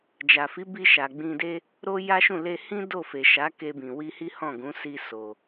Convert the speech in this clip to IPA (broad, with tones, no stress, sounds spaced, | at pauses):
d͡ʒ a˨ f i˨˦ b i˧ ʃ a˨ ɡ͡b ĩ˧ d e˦ | ɾ o˦ j a˦ ʃ ũ˦˨ l e˧ h ĩ˦ d o˦˨ f e˨ ʃ a˨˦ k e˧ b ĩ˨ w i˧ h i˦ h ɔ̃˦˨ ɡ ũ˨˦ s i˧ s o˧